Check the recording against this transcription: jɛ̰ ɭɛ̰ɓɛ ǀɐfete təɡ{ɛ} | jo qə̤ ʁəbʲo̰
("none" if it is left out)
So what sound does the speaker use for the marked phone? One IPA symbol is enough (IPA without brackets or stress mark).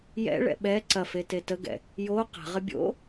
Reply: ɛ̰